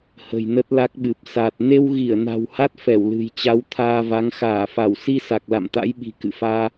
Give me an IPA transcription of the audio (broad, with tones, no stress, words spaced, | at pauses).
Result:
hə̤˨˩jnə˦˥t̚la˦˥k̚ɓɨ˨˩p̚ sa˨˩t̚ ne˧wɣi˧˩ə̯na̤˨˩w ha˦˥t̚ fɛ˧˩wlɨ̤˨˩j t͡ɕa˨˦wt̪ʰaː˧va˨˦ŋ xaː˧˩fa˧˩w si˧sa˨˩k̚ la̰˧˨mt̪a̰˧˥jɓi̤˨˩ kɨ̰˧˨faː˧